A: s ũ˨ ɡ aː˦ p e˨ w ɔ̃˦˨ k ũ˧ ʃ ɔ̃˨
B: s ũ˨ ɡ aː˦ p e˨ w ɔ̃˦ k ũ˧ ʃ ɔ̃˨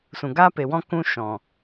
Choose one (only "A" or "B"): B